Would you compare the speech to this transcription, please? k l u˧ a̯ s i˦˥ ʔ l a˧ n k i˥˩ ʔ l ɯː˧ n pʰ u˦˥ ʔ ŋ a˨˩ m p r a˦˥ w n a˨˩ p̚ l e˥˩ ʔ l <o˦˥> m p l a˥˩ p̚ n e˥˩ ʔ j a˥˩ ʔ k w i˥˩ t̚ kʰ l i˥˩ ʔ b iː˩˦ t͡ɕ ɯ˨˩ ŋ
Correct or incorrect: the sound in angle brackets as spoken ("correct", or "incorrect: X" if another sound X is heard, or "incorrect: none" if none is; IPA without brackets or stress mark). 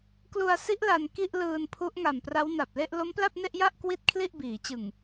correct